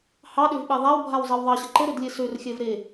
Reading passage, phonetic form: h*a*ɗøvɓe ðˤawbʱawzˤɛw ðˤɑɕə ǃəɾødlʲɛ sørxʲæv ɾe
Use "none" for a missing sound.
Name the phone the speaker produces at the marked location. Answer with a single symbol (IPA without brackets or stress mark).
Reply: ɑ